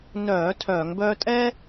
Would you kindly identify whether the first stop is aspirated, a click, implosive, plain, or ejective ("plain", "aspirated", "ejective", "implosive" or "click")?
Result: aspirated